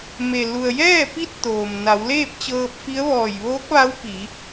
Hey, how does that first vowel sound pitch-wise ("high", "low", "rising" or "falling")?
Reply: low